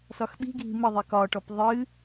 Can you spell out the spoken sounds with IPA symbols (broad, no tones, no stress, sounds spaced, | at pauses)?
s ɒ x ɓ i̤ ɡʱ i̤ m ɘ ðˤ i k ɒ ʈ ɔ p ðˤ ɨ